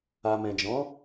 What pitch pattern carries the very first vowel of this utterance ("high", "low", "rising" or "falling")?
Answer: low